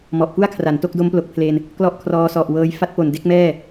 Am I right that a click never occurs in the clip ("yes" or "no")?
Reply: yes